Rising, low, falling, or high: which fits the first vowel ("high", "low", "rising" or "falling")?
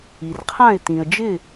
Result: low